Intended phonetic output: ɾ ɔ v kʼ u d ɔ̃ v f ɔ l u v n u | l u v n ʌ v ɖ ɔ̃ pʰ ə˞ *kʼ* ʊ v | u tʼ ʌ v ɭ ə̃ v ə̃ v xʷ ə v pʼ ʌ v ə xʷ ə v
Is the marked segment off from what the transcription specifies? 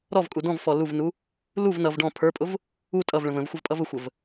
yes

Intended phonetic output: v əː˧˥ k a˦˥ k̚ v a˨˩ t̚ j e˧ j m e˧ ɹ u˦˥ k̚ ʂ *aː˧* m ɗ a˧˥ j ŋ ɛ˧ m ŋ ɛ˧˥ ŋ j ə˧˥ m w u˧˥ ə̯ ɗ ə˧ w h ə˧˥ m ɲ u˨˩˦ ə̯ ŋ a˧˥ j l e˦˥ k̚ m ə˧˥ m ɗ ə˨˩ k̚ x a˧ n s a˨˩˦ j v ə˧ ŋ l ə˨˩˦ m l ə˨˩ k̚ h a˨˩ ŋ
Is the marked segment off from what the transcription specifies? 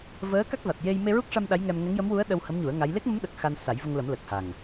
yes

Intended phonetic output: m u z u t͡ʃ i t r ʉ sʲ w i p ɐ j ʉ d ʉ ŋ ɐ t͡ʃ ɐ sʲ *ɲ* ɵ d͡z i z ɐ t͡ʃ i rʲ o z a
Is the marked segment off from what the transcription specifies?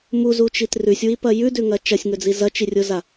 yes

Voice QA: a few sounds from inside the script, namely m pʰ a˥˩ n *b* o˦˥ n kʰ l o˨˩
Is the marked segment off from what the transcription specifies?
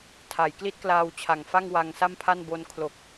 no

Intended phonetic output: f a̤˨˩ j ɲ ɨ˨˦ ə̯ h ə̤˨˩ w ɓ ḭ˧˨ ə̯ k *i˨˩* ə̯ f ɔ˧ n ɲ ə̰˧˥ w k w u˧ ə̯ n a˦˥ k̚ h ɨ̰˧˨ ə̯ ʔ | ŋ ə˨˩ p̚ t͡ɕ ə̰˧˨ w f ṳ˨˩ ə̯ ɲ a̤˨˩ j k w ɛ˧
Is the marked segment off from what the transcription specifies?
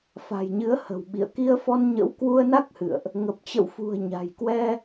yes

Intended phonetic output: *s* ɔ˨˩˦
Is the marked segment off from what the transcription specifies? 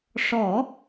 yes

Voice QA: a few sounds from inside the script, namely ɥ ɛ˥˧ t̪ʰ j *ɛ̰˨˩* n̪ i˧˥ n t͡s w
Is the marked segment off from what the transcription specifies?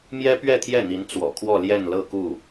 yes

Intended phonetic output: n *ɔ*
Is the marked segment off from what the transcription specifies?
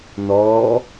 no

